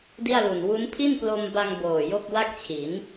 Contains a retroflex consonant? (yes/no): no